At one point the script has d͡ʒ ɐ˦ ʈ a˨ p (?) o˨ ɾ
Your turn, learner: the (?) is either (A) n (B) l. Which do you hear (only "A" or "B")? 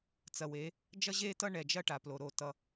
B